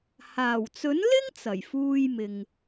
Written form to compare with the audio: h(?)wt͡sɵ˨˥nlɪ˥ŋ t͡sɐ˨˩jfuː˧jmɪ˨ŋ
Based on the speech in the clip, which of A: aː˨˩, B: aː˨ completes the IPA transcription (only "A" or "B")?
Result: A